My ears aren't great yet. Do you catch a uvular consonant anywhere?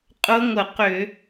yes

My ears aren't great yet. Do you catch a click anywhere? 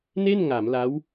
no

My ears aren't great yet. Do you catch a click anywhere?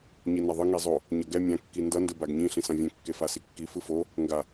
no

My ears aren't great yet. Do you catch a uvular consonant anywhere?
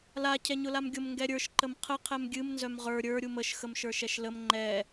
yes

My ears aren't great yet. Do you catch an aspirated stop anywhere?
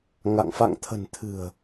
yes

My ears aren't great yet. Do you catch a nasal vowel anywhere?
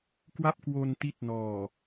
no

